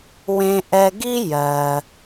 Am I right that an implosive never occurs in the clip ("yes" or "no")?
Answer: yes